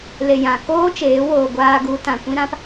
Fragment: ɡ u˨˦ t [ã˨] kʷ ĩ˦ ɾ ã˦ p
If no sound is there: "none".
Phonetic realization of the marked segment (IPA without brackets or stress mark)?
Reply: ã˨